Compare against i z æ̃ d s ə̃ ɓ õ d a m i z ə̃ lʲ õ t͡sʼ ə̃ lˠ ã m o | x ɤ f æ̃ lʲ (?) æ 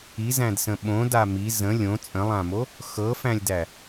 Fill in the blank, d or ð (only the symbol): d